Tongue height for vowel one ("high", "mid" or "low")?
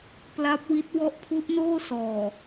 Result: low